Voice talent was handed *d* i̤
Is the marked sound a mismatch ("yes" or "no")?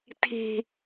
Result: yes